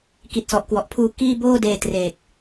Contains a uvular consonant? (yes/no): no